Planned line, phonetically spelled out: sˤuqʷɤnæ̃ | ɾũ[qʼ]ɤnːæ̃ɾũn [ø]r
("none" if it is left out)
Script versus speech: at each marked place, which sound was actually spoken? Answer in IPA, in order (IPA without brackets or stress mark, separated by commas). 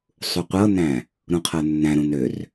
qʰ, ø